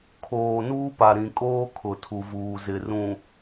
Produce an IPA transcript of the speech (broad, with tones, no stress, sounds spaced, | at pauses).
kʰ oː˨ n uː˦ p a˨ ɾ ĩ˨ kʼ oː˦ kʰ ʊ˨ tʰ u˨ v uː˨ z ɪ˨ r ũ˨